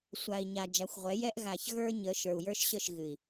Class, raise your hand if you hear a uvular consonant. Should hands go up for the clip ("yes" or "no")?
yes